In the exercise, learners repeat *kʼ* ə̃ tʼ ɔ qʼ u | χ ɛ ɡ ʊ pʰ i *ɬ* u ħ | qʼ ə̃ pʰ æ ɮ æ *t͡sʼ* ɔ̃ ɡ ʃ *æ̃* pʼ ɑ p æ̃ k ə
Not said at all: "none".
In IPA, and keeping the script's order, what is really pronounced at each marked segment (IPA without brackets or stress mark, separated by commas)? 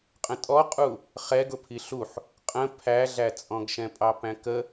qʼ, ɬ, t͡sʼ, ɛ̃